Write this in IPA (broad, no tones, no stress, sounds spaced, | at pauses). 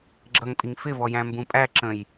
ɡ͡ǁ ʌ ŋ pʼ i ŋ f ɪ v ɔ j æ̃ m b ũ pʼ æ ǁ ə̃ j